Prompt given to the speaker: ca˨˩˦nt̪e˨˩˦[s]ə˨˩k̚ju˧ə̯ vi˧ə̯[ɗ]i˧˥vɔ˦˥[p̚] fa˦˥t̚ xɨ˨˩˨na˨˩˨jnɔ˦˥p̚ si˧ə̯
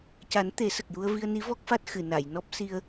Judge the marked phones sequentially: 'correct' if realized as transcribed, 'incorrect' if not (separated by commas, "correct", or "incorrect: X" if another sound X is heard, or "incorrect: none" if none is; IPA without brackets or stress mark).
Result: correct, incorrect: n, incorrect: k̚